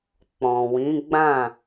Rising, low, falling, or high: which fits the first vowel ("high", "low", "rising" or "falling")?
low